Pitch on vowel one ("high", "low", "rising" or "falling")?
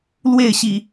falling